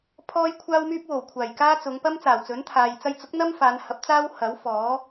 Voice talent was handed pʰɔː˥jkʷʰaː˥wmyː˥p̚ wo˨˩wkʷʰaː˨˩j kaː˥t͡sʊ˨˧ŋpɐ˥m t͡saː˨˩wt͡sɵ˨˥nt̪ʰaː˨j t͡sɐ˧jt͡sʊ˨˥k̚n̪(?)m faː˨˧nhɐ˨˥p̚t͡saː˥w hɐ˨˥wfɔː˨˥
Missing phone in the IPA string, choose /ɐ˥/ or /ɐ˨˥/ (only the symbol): ɐ˥